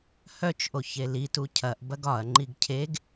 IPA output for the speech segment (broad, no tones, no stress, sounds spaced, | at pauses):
h œ t͡ʃ ʔ o ç e l i t u cʰ ɐ ʔ b ɐ ɡ ɒ ɐ̯ ŋ͡ǃ i ɡ cʰ e ɡ